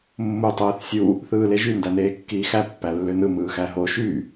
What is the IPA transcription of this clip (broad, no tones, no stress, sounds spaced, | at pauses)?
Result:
mː u tˤ ɯː θ sʲ u | θ ɯː l e ʒ y n d æ n eː kː iː x æ pː æ lː ø n ɯ m ɯː x æ ɦ o ʃ y